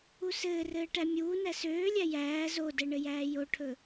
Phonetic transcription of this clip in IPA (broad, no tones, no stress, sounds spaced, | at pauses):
u s ɘː r ɘː ʈ æ mʲ uː n æ s øː lʲ æ j æː z o d ɛ ɳ ɘ j æː j o ʈʰ ɵ